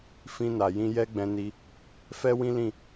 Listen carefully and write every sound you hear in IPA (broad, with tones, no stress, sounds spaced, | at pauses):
f ĩ˧ n a˨ j ĩ˧ j ɛ˦ ɡ͡b ɛ̃˧ n i˧ | f ɛ˦ w ĩ˦ l ĩ˦˨